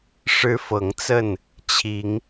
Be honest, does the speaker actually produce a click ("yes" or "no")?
no